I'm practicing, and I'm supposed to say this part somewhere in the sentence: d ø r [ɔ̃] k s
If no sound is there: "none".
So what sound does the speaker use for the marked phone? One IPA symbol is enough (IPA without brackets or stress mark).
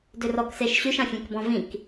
ɔ